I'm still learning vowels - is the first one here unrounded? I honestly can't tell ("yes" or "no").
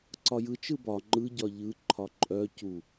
no